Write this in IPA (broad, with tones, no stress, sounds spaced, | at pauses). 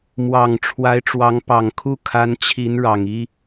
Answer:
m w ɑ˨˩ ŋ ʈ͡ʂʰ w a˧˥ ɪ̯ ʈ͡ʂ w ɑ˧˥ ŋ p ɑ˨˩ ŋ kʰ u˥˩ kʰ a˧˥ n t͡ɕʰ i˧˥ n ɻ ɑ˨˩ ŋ i˥